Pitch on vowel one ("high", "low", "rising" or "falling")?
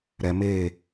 low